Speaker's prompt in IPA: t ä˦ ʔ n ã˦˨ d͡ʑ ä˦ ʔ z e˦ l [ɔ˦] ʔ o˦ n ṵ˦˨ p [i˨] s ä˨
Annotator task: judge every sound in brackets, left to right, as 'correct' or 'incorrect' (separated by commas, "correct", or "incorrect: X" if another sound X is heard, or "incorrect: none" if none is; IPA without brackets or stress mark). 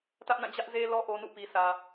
correct, correct